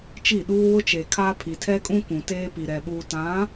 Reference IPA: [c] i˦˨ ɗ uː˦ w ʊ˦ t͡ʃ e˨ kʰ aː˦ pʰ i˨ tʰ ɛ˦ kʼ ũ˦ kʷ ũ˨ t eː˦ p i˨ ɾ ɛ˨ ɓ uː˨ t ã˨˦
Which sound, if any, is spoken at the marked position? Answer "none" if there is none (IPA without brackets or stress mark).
t͡ʃ